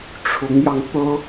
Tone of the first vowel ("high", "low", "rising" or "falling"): rising